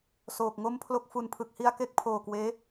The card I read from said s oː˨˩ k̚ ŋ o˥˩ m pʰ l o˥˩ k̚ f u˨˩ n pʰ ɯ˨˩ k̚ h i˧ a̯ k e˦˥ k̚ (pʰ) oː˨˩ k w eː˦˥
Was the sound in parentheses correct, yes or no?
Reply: yes